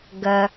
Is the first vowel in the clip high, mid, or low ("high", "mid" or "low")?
low